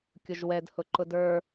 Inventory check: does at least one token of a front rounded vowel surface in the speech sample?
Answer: no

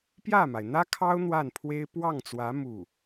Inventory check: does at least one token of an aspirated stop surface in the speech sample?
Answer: yes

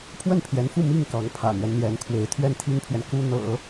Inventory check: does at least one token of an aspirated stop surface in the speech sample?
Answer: yes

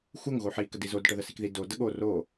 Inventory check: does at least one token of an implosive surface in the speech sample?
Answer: yes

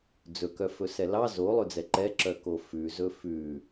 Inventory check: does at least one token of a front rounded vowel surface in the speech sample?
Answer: yes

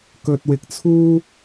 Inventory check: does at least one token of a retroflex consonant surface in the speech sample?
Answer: no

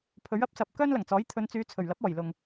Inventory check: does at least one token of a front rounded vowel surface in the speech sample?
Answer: yes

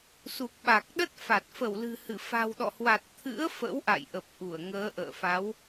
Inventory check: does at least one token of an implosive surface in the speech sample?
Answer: yes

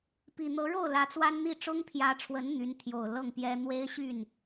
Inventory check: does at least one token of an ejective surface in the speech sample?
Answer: no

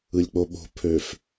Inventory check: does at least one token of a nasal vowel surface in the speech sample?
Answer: no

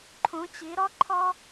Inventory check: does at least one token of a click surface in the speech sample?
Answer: yes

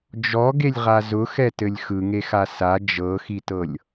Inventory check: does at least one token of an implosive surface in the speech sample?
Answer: no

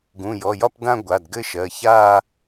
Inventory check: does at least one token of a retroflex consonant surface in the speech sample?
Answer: no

